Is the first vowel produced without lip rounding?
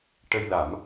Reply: yes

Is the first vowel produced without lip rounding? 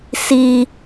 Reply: yes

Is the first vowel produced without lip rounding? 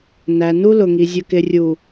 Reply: yes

